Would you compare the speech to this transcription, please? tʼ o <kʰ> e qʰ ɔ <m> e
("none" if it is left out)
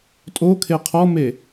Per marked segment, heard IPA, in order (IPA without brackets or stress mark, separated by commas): kʰ, m